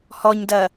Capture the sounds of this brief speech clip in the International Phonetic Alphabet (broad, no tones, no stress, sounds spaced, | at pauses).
h ɔ ɲ d ɐː